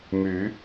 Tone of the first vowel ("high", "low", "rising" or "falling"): rising